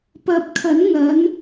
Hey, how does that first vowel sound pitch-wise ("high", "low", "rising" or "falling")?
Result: rising